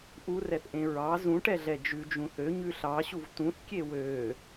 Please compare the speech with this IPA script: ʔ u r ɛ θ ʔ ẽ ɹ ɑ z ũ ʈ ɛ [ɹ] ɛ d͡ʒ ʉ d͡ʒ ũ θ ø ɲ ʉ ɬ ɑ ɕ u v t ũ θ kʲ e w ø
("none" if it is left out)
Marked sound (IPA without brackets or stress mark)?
ɮ